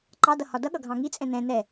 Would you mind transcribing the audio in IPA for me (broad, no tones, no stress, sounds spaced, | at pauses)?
ǃ ɑ d ʌ h ɒ d ʌ ɠ ʌ ɡʱ ɑ̃ ŋ i t͡sʼ ɛ̃ n ɛ̃ n ɛ